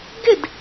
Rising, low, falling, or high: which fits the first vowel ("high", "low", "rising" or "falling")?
falling